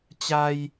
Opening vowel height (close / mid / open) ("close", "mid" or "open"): open